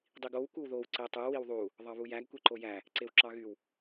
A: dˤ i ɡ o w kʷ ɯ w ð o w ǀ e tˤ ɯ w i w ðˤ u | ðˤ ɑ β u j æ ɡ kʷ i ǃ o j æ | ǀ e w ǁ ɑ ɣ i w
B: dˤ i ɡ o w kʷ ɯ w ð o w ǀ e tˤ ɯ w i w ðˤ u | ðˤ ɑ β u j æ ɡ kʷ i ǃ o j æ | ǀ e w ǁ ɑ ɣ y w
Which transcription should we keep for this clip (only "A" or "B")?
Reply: B